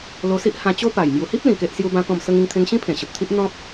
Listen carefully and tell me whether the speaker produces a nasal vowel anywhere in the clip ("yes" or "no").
yes